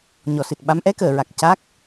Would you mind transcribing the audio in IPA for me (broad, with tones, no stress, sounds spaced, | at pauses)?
ɲ ɔ˨˩ s ɨ˨˩ t̚ ɓ a˧˥ m ʔ ɛ˧˥ k əː˨˩˨ ɹ a˨˩ k̚ c a˦˥ k̚